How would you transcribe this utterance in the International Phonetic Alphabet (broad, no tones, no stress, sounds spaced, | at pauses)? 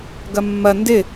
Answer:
ɡ ɐ mː ɐ n d ɪ